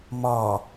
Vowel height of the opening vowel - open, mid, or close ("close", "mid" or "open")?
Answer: open